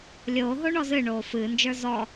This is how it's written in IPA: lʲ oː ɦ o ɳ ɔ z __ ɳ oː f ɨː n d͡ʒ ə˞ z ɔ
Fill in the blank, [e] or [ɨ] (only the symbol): ɨ